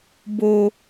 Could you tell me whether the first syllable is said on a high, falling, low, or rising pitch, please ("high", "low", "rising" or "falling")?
high